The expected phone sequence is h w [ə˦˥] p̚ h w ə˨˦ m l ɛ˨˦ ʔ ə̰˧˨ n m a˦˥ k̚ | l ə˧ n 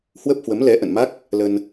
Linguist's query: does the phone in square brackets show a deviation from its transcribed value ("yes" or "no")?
no